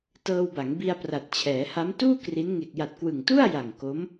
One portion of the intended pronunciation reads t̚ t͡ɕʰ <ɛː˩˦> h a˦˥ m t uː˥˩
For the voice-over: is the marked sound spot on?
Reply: yes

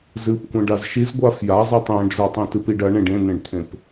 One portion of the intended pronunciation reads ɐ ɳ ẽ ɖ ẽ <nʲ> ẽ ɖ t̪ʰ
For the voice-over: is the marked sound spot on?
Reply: no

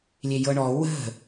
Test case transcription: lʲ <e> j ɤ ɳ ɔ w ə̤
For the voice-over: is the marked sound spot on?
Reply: yes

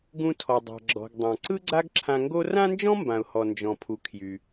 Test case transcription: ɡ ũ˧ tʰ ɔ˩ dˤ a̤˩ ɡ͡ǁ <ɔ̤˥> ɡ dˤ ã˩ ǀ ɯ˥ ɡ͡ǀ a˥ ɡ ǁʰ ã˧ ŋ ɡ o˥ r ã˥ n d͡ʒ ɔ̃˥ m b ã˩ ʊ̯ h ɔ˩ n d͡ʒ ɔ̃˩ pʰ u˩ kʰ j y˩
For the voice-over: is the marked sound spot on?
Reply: no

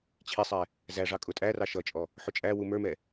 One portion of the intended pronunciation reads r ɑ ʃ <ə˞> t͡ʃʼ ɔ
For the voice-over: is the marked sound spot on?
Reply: no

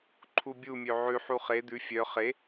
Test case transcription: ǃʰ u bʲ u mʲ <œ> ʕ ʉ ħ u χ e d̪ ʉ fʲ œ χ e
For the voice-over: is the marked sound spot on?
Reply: no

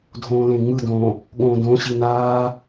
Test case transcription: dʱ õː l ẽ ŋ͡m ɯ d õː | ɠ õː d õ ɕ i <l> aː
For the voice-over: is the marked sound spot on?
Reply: no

